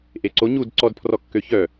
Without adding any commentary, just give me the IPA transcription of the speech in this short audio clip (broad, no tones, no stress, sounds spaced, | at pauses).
ʔ e ǀ o ɲ u d ǀ ɔ d pʰ r ɔ kː ø ç œ